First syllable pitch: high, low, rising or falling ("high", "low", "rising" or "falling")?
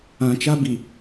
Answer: low